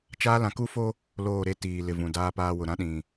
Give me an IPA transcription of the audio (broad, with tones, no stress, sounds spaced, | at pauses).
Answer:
t͡ʃ aː˦ l ã˨˦ k u˦ f o˦ | l oː˦˨ ɾ e˦ t iː˨ l ɪ˨ v ũ˨ d aː˦ p aː˦ w ʊ˨ ɾ ã˦ ɗ ĩ˨